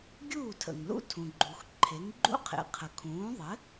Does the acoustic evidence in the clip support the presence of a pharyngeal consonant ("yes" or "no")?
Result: no